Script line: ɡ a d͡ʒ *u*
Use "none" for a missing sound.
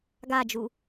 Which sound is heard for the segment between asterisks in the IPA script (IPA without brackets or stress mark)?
u